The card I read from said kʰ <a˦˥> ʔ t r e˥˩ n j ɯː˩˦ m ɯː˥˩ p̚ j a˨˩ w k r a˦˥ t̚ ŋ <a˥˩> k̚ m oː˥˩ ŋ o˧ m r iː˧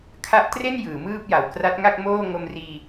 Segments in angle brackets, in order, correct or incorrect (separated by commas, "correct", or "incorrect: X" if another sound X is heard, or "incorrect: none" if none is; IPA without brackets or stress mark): correct, correct